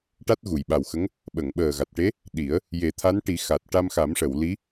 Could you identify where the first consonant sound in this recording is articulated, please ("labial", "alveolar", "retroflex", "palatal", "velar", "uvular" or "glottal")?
retroflex